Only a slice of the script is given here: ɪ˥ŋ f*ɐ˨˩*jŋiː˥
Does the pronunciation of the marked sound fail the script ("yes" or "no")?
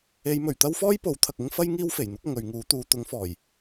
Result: yes